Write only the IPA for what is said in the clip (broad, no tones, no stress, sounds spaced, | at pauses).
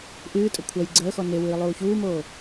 ʔ ɨː tʼ ə kʷʰ ɐ j ɡ͡ǀ əː x ɔ n e w ɨː lˠ uː ç uː m oː